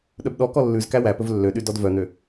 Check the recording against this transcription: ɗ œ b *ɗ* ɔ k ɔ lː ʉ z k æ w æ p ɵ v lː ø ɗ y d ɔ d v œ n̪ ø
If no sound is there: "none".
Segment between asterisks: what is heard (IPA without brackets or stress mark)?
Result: ɗ